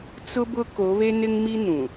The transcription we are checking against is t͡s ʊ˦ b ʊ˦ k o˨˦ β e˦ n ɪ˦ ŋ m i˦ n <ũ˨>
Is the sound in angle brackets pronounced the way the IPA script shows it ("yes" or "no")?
yes